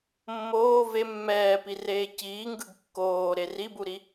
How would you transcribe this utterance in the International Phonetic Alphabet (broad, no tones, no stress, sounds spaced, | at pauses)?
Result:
mː oː v e mː ɛː p i r eː c iː ŋ ɡ ɯ ɡ kː oː ɾ e r i b u ɾ i